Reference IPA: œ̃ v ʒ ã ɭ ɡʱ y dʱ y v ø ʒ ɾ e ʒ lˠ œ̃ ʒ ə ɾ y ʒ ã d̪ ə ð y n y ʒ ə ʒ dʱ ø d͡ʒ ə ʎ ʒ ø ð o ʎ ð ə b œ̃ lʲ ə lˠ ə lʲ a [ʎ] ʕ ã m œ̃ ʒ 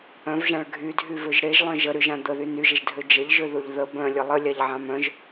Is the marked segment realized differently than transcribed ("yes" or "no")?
no